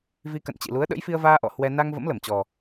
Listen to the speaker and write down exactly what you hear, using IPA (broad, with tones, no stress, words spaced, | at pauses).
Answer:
vi˧kə̰˧˨nt͡ɕḭ˧˨lu˨˦ə̯ ɗə̰˧˥jfi˧ə̯vaː˧ ʔɔ̰˧˨ hwɛ˧ na˧ŋ və̰˧˥mlə˧˩mt͡ɕɔ˨˩